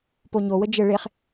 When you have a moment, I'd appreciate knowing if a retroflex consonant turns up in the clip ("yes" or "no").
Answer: yes